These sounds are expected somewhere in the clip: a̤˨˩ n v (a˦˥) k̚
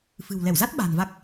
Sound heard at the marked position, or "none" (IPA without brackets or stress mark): a˦˥